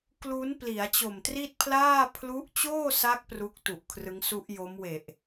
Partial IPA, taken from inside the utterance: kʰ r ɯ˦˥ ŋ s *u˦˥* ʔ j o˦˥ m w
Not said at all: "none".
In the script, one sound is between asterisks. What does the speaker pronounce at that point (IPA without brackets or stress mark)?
u˦˥